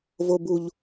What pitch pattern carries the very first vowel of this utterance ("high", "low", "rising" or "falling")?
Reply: low